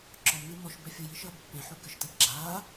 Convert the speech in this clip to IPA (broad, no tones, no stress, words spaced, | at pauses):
ǁɔmnɨ mɔʃ bɛfʲuji ʃɐːbpːẽħu kɨʃtɛb ɡ͡ǁaː